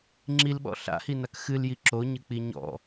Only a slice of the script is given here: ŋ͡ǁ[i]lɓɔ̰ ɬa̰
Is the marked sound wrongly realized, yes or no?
no